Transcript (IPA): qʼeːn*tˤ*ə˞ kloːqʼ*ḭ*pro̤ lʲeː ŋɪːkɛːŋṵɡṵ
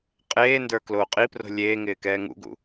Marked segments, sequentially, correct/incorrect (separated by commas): incorrect, incorrect